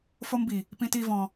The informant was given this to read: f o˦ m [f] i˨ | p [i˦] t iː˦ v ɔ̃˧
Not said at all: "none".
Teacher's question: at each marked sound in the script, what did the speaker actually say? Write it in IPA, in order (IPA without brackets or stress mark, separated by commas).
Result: b, ĩ˦